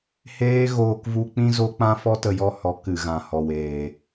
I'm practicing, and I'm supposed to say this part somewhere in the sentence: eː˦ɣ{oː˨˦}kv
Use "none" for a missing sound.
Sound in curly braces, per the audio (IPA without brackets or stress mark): oː˧